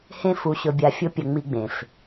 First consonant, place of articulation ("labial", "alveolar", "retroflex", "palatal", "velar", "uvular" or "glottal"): glottal